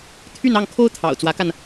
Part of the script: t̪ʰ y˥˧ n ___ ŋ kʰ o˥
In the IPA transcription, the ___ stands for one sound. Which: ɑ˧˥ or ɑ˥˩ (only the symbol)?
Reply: ɑ˥˩